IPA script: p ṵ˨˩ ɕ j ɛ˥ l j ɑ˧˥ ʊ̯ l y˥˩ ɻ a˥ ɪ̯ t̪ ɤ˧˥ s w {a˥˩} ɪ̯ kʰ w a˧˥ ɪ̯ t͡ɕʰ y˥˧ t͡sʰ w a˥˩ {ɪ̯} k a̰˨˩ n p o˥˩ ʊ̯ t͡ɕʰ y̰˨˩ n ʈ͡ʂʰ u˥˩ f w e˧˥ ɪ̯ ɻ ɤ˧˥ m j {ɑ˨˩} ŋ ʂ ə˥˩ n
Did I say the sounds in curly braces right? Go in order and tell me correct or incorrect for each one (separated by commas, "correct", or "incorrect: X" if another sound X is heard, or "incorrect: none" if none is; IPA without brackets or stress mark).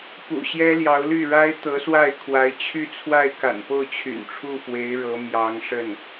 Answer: correct, correct, incorrect: ɑ˧˥